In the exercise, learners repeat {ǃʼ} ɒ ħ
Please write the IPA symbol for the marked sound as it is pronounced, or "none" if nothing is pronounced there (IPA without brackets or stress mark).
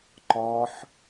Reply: ǃ